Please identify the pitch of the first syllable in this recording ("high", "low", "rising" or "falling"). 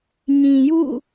low